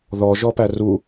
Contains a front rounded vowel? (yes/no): no